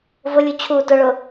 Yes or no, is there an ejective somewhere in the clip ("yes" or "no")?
no